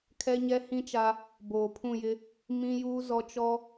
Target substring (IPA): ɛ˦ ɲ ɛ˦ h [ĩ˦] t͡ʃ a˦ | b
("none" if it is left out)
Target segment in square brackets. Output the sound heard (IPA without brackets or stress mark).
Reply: ĩ˦